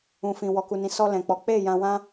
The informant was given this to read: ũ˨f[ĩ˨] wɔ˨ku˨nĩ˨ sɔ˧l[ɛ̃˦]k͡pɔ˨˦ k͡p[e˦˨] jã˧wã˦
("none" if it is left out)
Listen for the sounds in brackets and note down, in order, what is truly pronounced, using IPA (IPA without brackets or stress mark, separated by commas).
ĩ˨, ɛ̃˨, e˦˨